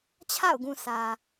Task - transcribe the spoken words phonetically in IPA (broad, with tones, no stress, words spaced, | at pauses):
t͡ɕʰa̰˦˨ʊ̯ɡũ˨ sä˨